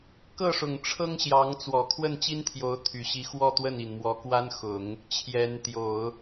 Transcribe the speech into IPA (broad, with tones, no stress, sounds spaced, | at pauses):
k ɤ˥˩ ʂ ʊ˨˩ ŋ ʈ͡ʂʰ ɤ˥ ŋ ɕ j ɑ˧˥ ŋ t͡s w ɔ˨˩ kʰ w ə˥˩ n t͡ɕ i˥ n t̪ʰ j o˧˥ ʊ̯ t̪ʰ y˨˩ ɕ i˧˥ x w ɔ˥˧ t̪ w ə˥˩ n i˨˩ n m w ɔ˧˥ k w a˥ n x ʊ˨˩˦ ŋ | t͡ɕʰ j ɛ˧˥ n t̪ j o˨˩˦ ʊ̯